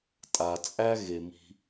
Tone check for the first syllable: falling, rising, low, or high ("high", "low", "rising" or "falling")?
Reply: low